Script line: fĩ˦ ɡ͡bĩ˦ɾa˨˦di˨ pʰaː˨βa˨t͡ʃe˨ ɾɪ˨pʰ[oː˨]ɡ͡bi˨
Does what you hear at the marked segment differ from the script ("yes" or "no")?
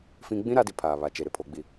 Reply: yes